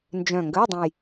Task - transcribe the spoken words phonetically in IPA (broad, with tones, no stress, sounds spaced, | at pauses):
n d͡ʒ œ̃˨˩ ŋ ɡ ə˧˥˧ j dˤ ə̃˨˩ j